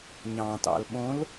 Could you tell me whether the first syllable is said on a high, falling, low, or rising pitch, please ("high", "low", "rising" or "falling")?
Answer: low